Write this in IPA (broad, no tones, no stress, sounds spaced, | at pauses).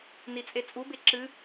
n i t͡sʼ e t͡sʼ u b e ǁ ɨ